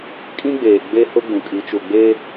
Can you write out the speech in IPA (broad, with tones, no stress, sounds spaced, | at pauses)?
kʼ ĩ˦ ɡ͡b eː˨ ɡ͡b e˦ h ʊ˦ ɡ͡b ũ˨ kʼ i˨˦ t͡ʃ u˨ ɡ͡b e˦